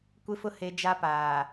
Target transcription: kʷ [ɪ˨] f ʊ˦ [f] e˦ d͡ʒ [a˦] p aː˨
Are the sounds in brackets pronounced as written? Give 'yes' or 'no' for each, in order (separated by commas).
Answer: no, no, yes